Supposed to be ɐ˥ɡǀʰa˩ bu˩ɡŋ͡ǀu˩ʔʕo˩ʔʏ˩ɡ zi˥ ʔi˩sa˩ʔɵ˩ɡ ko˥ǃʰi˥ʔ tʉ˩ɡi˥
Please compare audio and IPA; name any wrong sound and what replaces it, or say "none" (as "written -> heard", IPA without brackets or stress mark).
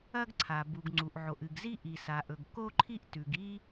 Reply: ʏ˩ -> ɨ˩